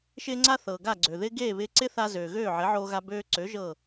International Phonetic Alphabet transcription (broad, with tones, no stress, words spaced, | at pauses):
ʃɪː˥ŋ͡ǀa˥ θɤː˩ɡa˥˩ɡ͡ǀø˩ðɪː˥ ɡeː˥˩βɪː˧ǀɪ˥θa˧ zøː˩ ɣøː˥˩ʕɪ˩˥ʕoː˧ɣa˧ bøː˧ǀø˩˥ ʒɤ˥˩